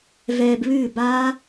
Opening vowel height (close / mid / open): mid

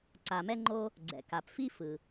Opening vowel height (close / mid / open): open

